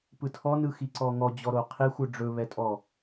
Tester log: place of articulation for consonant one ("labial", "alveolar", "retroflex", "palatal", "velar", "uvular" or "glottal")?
labial